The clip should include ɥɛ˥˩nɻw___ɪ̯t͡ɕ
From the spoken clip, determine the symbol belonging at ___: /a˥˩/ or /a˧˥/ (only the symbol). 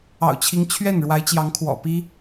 a˧˥